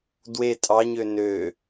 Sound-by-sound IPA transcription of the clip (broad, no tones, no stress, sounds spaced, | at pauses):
d w e tʼ ɑ ɲ ø n ø